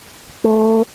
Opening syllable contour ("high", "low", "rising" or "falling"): high